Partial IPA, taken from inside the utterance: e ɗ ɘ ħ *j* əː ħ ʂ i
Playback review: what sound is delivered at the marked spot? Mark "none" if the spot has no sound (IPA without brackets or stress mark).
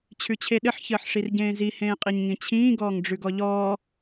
ç